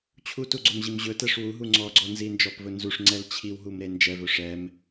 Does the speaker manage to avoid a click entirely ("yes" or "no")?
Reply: no